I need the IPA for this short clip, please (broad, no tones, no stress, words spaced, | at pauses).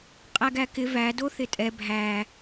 qʼæɡækɪ væ doθɪtʼɛ bʱæ